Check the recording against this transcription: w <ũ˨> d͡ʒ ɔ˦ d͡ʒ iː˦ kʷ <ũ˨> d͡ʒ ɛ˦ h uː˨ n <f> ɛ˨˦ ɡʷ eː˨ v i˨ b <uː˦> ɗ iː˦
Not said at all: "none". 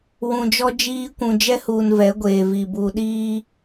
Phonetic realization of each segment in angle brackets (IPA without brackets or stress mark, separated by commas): ũ˨, ũ˨, v, uː˨